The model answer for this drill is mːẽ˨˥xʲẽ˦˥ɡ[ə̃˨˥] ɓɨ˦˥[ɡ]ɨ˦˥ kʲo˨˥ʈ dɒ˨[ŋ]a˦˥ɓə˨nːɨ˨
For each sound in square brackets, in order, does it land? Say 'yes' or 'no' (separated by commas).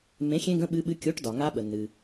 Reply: no, no, yes